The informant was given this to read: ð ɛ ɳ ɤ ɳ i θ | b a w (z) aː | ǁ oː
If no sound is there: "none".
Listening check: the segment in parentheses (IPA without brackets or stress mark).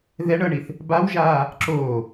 ʒ